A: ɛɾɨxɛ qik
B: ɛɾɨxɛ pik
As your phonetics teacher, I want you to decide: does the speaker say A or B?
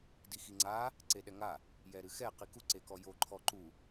A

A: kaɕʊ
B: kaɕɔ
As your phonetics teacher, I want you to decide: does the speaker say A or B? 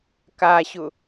A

